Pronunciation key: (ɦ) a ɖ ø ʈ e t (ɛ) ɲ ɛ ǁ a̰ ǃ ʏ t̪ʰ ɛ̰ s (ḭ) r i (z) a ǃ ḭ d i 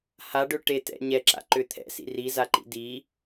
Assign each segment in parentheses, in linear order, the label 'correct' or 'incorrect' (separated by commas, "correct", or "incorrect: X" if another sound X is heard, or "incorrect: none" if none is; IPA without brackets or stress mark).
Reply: incorrect: h, incorrect: ɛ̰, correct, correct